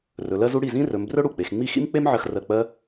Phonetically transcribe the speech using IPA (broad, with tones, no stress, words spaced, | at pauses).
rɵ˨˦ lɜ˥zu˥ ɽi˥˩zĩ˥rɵ˨˦m brɵ˥ ɽu˥˩k͡pe˨˦x ŋ͡mi˥˩xḭ˥mk͡pe˥m ʕɜ˥xrɜ˥˩ k͡pɜ˥